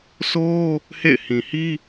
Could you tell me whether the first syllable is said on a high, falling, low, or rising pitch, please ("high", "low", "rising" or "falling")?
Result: high